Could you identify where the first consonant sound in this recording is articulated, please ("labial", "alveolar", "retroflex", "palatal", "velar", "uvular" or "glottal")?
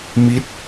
labial